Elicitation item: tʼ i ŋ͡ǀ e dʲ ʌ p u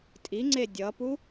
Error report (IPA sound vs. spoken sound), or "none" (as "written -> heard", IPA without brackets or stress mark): none